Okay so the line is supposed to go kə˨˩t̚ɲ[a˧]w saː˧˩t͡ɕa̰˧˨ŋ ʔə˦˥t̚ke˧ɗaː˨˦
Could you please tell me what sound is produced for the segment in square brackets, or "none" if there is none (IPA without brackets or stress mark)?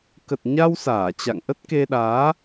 a˧